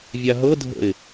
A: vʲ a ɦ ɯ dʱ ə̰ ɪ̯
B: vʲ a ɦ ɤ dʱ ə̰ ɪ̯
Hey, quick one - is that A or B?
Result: B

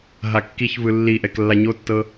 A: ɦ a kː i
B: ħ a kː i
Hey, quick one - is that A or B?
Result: A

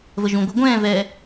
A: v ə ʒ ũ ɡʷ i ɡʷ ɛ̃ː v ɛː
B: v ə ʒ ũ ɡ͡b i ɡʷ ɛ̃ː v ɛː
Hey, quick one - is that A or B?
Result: A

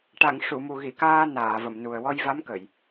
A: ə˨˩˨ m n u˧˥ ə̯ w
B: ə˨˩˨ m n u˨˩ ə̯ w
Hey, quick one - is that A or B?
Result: B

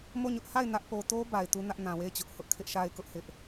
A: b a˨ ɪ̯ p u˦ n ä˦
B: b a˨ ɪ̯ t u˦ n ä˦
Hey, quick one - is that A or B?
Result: B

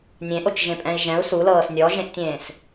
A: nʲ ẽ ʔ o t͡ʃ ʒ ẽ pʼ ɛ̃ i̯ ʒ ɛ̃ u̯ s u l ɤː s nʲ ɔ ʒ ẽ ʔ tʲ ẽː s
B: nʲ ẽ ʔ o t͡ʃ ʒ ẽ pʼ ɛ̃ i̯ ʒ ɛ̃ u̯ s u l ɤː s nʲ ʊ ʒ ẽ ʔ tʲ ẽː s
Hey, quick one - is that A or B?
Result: A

